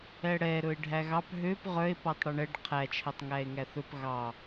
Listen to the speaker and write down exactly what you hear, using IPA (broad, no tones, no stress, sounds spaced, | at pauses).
ɛ ɽ ɛ ɾ ɵ e̯ ɖʱ æ ɣ ɑ p ɦ ø p ʁ œ e̯ p ɔ tˤ ɽ ɵ ɳ ɛ ɖ qʰ æ t͡ʃʰ æ tˤ ŋ æ e̯ ŋ æ θ ɵ p ɣ ɑ